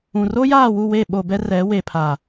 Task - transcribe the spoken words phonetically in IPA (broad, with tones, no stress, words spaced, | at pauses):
ũ˨ ro˦jaː˦˨wu˦˨we˦˨ ɓo˨bɛ˦rɛ˨˦ we˨pʰa˨